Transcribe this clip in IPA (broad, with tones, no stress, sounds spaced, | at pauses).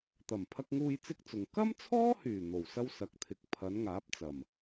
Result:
t̪ ɐ˨˩ m pʰ ɐ˧ k̚ ŋ uː˧ j t͡s ɪ˥ k̚ t͡s ʊ˨ ŋ k ɐ˥ m t͡sʰ ɔː˥ h yː˨˩ n̪ o˨˩ w s ɐ˥ w s ɐ˨˥ k̚ t̪ʰ ɪ˧ k̚ pʰ ɐ˨˥ n ŋ aː˨˥ p̚ t͡s ɐ˨˩ m